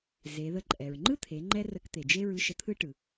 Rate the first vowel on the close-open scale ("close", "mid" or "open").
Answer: mid